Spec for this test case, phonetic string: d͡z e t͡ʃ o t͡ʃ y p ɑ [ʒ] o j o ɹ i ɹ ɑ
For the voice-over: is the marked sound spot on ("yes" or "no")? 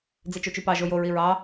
yes